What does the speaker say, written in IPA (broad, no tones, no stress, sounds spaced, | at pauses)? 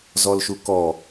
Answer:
z ɔ l ʃ u k ɔ